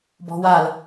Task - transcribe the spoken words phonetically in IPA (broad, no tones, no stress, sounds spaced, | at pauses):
b ɔ̤ w a l